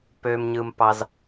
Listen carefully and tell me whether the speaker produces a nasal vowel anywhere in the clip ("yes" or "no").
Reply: no